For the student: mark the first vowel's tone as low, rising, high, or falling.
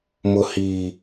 high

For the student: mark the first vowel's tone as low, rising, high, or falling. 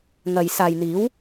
low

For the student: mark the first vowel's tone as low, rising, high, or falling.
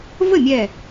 falling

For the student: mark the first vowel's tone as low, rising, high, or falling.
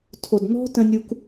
low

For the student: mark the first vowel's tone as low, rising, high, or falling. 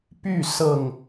falling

